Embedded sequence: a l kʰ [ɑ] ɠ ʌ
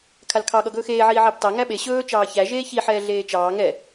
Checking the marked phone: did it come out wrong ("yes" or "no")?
no